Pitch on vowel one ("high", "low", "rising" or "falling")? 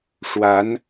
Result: rising